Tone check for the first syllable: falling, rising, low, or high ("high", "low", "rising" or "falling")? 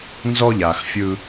high